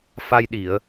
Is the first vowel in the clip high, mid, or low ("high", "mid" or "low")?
low